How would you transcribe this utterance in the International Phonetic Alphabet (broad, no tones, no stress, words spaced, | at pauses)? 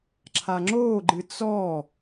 ǁʰaŋ͡ǁoːɡ͡ǃɨ t͡sɔ